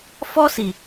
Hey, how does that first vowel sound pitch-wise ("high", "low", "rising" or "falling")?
high